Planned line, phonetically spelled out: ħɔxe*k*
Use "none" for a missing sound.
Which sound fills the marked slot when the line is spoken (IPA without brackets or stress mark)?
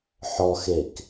k